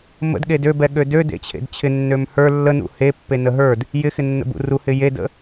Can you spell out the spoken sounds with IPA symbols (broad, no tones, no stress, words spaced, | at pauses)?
mə̰dɠed øbɛɠø dødḛt͡ɕʰḛd t͡ɕʰɪ nːømhə˞ lːənṵ he pːenəɦə˞d | jɪxɪnːə̰bṵ ruhɪ jedə̰